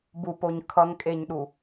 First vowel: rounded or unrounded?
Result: rounded